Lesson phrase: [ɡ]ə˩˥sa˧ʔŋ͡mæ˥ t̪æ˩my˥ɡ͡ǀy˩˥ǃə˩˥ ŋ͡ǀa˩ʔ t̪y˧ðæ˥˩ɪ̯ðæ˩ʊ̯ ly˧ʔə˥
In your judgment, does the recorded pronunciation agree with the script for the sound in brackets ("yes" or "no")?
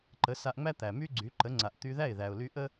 no